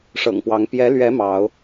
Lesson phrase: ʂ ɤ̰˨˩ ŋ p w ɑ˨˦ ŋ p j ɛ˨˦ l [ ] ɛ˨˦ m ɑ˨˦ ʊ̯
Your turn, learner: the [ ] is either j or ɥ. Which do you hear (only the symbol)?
ɥ